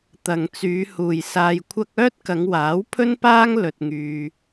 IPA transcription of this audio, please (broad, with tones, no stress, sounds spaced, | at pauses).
t̪ ɐ˨ ŋ t͡s yː˨˧ h uː˨ j s aː˧ j kʷʰ ɐ˥ k̚ œː˥ t̚ k ɐ˨˧ ŋ w aː˨˥ w pʰ ɵ˥ n p aː˥ ŋ l ɵ˧ t̚ ŋ yː˧